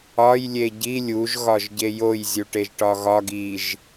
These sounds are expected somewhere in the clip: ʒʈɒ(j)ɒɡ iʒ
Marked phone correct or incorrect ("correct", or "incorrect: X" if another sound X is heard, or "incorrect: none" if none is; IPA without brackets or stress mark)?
incorrect: ɣ